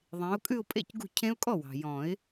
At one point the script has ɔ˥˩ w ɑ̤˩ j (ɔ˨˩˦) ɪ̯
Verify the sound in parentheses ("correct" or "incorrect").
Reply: incorrect